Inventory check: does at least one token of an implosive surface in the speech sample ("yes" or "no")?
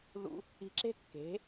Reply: no